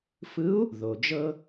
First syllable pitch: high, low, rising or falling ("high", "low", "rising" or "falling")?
rising